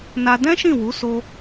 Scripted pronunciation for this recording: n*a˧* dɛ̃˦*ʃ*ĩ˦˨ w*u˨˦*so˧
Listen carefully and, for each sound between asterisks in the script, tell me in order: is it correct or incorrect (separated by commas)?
correct, correct, correct